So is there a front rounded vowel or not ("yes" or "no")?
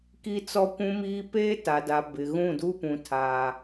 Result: no